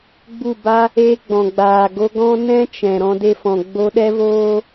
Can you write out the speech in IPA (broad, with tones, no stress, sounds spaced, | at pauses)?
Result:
ɡ͡b u˦˨ b a˦ | e˦ ɡ͡b ɔ̃˨ ɡ͡b aː˨ ɡ o˧ ɡ ɔ̃˦ n ɛ̃˦ t͡ʃ ɛ̃˨ ɾ ɔ̃˧ d e˧ f ɔ̃˨ ɡ͡b o˧ ɗ ɛ˦ v oː˦